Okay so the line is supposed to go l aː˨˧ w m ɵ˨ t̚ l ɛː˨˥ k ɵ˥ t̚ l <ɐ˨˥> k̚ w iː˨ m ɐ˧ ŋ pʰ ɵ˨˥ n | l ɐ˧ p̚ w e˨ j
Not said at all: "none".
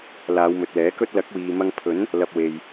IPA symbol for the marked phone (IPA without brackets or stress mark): ɐ˨˥